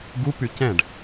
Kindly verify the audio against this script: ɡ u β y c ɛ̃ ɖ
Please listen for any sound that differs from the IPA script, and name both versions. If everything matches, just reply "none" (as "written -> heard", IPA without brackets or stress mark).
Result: β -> p